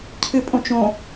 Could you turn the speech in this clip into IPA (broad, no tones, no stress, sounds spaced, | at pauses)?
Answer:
cʰ ɨ pʼ õ t͡ʃ õ